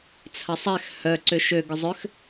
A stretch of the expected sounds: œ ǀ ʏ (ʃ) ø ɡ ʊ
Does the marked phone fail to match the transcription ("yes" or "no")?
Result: no